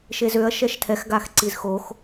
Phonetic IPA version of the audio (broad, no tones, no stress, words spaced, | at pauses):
ʃezøɐ̯ ʃɛʃtʰɛx ɡaxǀizxox